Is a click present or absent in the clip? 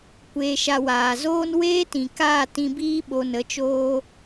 absent